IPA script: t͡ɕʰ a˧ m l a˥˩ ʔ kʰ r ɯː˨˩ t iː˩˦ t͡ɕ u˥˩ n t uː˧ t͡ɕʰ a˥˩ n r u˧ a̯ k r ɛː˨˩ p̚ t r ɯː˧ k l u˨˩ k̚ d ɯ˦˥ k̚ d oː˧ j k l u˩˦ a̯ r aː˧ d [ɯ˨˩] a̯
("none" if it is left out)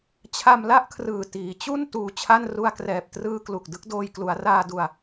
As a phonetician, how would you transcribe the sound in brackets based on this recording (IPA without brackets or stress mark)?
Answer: u˨˩